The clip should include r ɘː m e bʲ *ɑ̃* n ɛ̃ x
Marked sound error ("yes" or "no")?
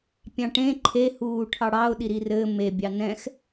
yes